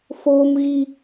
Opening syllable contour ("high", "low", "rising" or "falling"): high